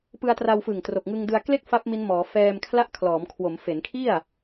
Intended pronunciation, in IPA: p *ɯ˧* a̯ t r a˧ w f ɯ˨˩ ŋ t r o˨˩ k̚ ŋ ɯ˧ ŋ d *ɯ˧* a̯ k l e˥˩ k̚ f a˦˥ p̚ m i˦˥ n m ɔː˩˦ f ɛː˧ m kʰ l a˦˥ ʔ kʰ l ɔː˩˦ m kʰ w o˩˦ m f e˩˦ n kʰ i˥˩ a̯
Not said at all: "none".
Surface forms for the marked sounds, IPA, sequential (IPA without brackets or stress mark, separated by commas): ɯ˧, ɯ˧